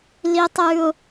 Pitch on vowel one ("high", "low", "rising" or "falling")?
high